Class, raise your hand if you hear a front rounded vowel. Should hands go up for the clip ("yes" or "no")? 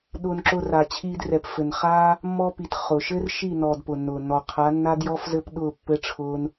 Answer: no